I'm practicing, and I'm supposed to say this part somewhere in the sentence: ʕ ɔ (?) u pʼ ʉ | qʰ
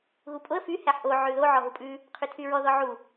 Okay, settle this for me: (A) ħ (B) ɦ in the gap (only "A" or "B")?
B